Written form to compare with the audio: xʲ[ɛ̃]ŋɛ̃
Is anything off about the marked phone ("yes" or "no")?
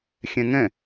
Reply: no